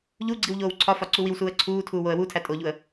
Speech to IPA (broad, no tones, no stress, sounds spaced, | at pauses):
ʎ u ɡ͡ǀ i w ʎ oː w ǀʰ ɒ f ɒ ǀ u w i w s uː ə̯ ǀʰ uː tʰ uː w o ə̯ w u tʰ æ tʼ o ʎ u ə̯